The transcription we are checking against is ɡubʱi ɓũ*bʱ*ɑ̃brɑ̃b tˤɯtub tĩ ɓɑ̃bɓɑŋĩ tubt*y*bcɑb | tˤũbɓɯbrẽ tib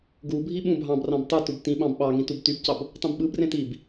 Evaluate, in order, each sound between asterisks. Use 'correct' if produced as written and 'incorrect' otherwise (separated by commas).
correct, correct